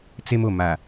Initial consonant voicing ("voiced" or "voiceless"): voiceless